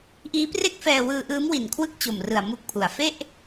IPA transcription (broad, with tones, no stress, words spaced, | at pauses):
ʔiː˦˥pre˥˩k̚fɛː˧ wɯː˧ʔɯː˦˥m wi˨˩n kʰwɯ˥˩k̚t͡ɕo˨˩mrɯ˨˩a̯ mu˦˥k̚pʰu˩˦a̯ fe˥˩ʔ